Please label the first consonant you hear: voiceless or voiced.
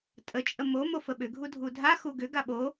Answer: voiceless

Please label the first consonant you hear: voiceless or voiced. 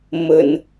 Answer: voiced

